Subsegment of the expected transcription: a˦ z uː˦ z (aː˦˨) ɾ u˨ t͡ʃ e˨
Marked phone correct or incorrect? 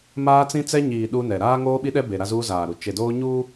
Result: incorrect